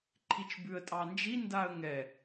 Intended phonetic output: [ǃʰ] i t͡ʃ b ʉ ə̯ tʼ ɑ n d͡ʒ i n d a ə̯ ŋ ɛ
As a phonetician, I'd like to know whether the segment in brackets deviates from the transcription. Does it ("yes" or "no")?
no